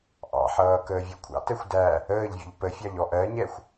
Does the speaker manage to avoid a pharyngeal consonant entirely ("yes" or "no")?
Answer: no